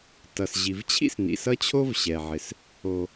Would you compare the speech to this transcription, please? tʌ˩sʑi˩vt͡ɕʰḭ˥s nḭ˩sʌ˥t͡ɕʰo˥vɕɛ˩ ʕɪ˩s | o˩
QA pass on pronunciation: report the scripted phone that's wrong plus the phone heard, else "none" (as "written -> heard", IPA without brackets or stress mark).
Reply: none